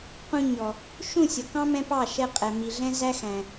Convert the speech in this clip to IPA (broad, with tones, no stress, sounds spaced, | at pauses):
q ũ˧ ɲ ɔ˨ | ʃ ũ˦˨ sʲ ʌ˨ k ɑ̃˦ m ɛ̃˦ p ɑ˦˨ ʃ ɛ˧ qʼ ɛ˨ m i˨ ɮ ɛ̃˦ z æ˦ x æ̃˨